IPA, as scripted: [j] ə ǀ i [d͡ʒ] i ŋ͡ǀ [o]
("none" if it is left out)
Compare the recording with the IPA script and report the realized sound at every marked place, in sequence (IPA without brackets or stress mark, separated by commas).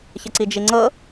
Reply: ç, d͡ʒ, ɤ